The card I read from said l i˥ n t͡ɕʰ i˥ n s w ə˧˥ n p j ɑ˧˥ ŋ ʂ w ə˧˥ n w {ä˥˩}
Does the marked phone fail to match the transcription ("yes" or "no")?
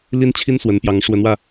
yes